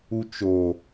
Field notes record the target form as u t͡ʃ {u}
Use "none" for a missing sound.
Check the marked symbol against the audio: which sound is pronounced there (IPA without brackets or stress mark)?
o